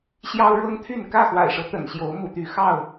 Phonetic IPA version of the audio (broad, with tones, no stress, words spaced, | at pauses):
ɕjɑ˦ʊ̯ɻɤ˦ŋt̪ʰy˥˨n kä˥˨xwa̰˨˩ɪ̯ʂɤ˦ t̪ə̰˨˩nɕjo˨˦ʊ̯ mṵ˨˩t̪y˨˦ xɑ˥˨ʊ̯